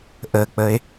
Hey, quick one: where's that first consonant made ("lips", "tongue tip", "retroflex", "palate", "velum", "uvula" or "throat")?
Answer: throat